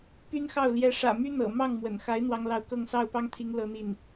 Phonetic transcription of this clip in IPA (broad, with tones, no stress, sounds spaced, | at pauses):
p y˥ n x ɑ˥˩ ʊ̯ l j ɛ˧˥ ʂ ä̰˨˩ m y˥ n̪ ɤ̰˨˩ m ɑ˥˩ ŋ m w ə̰˨˩ n x a˧˥ ɪ̯ n̪ w ɑ˥ ŋ l ɑ˥˧ ʊ̯ k ɤ˥˧ ŋ s ɑ˥˩ ʊ̯ p ɑ˥ ŋ t̪ʰ i˧˥ ŋ l ɤ˥ n̪ i˥˩ n